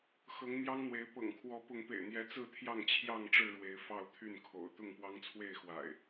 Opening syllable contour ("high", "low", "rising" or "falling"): rising